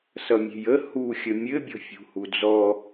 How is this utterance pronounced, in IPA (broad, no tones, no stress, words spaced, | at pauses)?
sʌmʲe̤jə huxʲə mʲɘbʲɔ̤fʲṳ hud͡zɔ